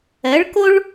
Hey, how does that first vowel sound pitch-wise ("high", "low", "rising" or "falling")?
rising